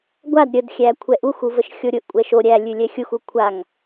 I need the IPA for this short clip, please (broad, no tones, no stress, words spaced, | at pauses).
ɡʷad ɾʲədxʲæ kʷʰɛʔuxu vəʃxʲoɾʲʊʔkʷʼɛʃ o ɾʲælʲʉ lʲɛxʲuxu kʷʰaŋ